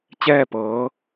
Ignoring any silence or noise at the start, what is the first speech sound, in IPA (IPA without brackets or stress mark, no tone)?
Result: t͡ɕ